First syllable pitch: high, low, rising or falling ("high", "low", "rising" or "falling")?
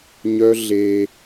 high